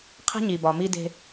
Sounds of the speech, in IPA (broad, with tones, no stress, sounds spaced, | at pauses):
qʰ e̤˦ ɲ i˨ b ɒ˨ m i˦ d e̤˦